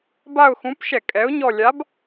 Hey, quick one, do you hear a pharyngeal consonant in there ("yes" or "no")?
no